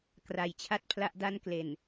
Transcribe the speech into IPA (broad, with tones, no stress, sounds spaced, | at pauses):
k r a˩˦ j t͡ɕʰ a˥˩ t̚ pʰ l a˥˩ ʔ d a˥˩ n k l e˨˩ n